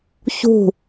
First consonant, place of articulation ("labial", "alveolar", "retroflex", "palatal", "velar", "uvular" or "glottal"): palatal